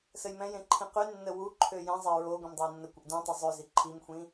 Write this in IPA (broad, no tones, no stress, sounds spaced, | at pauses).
s ə j m ɛ̃ j ẽ ǃʰ ĩ q y nː ə w u ǃʰ ø j ɛ̃ zˤ ɛ ɹ o ɡʷ ẽ m dˤ ø e̯ nː ə kʷ ə ʔ d ũ tˤ o zˤ ø z i ǃʰ i m xʷ ĩ